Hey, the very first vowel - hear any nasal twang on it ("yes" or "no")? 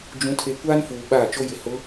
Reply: yes